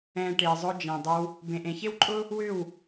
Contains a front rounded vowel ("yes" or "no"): yes